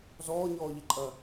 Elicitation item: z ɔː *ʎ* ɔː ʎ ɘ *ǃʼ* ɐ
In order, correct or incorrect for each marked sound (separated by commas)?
incorrect, correct